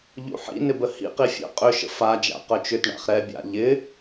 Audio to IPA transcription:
ʎ ṵ ħ ḭ n ɪ b ə h ḭ q i fʲ ə̰ qʼ ʏ ʃ ə̰ f a d͡ʒ a̰ q œ t͡ʃ ʏ t ɳ a̰ χ ɾ ɛ bʲ a̰ ʎ ɪ

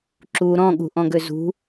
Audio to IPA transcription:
ǁ u ɾ ɔ̃ ɠ ṳ ʔ ɔ̃ ɡ ø z ṳ

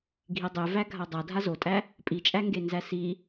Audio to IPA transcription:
ɡʱ i dˤ e v æ ɡʱ a dˤ a dʱ a z o tʼ æ | pʼ i t͡ʃʼ æ ŋ ɡ e n z æ s i

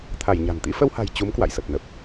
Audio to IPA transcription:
t̪ʰ a˧˩ j ɲ a̤˨˩ n t̪ ḭ˧˥ f ə˧ w h a̤˨˩ j t͡ɕ u˨˦ m k w a̰˧˨ j s ə˨˩ p̚ n ə˨˩ p̚

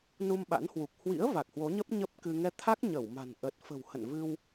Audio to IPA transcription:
n u˧ m ɓ a̰˧˥ n h w u˨˩ k̚ h w ḭ˧˥ ə̯ v a˨˩ k̚ h w o˨˦ ɲ ə˦˥ p̚ ɲ ə˦˥ p̚ k ɨ˧ ŋ ɛ˧ t̪ʰ a˦˥ k̚ ɲ ə˧˩ w m a̤˨˩ n ʔ ə˨˩ t̚ f ə̤˨˩ w h ə̰˧˨ n v ɨ˧ w

